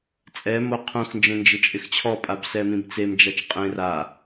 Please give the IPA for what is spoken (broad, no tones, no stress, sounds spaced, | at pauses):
t͡sʼ ɛ m o qʰ ũ x n d͡ʒ ẽ n d͡ʒ ɪ t͡ʃʼ ɪ x t͡ɕʰ ɔ pʼ a b s ɛ m ĩ b t͡s e m d͡ʒ a t͡ʃ qʼ ẽ r a